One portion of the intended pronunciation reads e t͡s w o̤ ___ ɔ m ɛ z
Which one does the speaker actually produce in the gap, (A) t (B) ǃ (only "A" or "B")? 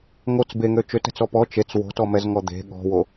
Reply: A